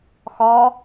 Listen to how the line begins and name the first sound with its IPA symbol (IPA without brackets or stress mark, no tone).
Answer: x